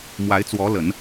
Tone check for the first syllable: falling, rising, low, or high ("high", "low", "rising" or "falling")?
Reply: rising